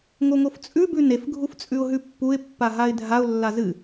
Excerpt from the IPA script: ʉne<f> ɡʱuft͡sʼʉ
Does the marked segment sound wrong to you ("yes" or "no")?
no